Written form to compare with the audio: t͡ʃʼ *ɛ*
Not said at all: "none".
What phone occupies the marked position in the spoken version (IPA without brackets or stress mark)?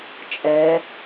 ɛ